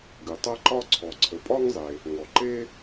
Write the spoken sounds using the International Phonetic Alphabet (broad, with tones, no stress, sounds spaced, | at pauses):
ɡ ɨ˩ tˤ a˥ ǃ ɒ˥ ǀʰ ɔ˩ ǀʰ ə˩ pʼ ɒ˥ ŋ zˤ e˩ | ŋ ɔ˩ ǃ e˥